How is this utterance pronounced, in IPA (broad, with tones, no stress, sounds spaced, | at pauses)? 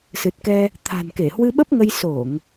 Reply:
s ɨ˨˩ t̚ k ɛ˧ | t̪ʰ a̤˨˩ n k e˧˩ h w ɨ˧ ɓ ə˦˥ p̚ ŋ ə˧ j s o˧˩˨ ŋ